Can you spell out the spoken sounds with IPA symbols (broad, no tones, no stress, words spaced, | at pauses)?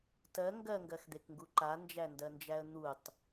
tɜ ŋɡɜŋɡɜxd̪ekŋɡu ǃand͡ʒændɜnd͡ʒæə̯ n̪utˤ